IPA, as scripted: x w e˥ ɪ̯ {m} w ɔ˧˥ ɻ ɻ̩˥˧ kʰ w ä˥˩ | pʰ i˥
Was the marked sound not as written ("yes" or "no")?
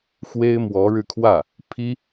no